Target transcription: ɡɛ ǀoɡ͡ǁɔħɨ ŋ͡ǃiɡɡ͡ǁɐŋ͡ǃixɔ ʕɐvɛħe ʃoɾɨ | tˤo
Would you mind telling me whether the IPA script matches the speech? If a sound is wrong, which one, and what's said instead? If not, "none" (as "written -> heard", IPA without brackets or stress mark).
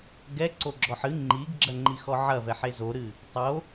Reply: ʃ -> z